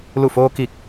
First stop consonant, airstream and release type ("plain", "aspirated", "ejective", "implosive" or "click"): plain